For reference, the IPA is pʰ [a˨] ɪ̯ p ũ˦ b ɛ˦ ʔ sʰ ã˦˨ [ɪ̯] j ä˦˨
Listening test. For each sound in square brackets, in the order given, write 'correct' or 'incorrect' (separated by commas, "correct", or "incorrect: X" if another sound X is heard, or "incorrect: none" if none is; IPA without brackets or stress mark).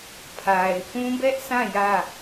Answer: correct, incorrect: none